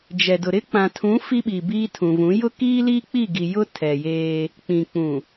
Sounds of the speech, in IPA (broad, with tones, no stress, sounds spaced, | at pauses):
d͡ʒ ɛ˨ d ʊ˨ ɾ ɪ˦ k͡p ã˨ tʰ ũ˨˦ f i˦ ɓ i˨ b iː˦ tʰ ũ˨ v ũ˨˦ j ʊ˦ k iː˦ l iː˦ k͡p i˦˨ ɡ i˨ j ʊ˦ tʰ ɛ˨ j eː˦ | k͡p ĩ˨ k͡p ũ˨